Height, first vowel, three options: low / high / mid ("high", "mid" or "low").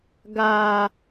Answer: low